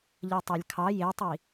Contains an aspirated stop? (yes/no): yes